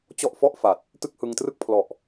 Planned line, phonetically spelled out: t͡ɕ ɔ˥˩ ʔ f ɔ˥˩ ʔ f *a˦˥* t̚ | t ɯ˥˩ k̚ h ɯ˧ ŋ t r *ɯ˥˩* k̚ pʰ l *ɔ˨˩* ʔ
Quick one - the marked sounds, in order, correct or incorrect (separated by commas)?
incorrect, correct, correct